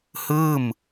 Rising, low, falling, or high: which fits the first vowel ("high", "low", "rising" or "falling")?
falling